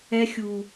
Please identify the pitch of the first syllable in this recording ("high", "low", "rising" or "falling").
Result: low